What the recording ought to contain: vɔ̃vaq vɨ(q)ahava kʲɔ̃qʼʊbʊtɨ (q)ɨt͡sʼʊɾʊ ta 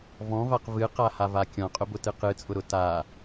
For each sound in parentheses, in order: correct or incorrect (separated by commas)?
correct, correct